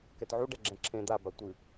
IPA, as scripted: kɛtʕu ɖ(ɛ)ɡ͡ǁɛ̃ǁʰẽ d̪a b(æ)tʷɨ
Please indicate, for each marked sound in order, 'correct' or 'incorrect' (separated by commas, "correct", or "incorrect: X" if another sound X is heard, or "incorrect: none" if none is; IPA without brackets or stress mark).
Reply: correct, incorrect: a